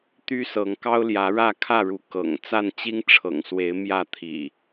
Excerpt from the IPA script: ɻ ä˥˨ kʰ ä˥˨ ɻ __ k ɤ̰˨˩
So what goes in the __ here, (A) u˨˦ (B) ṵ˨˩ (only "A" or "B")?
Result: A